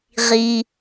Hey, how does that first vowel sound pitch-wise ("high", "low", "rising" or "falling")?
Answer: low